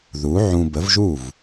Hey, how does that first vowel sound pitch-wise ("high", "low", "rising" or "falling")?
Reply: rising